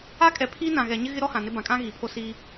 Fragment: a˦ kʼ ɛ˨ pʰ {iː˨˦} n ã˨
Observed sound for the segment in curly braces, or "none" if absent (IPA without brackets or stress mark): iː˦